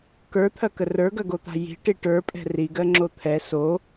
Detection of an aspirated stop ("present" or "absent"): present